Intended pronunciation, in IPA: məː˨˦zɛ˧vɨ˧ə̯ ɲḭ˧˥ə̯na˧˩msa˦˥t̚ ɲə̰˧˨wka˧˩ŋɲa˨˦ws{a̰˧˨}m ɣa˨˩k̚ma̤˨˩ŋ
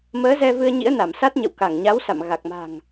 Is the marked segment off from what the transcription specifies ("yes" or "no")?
no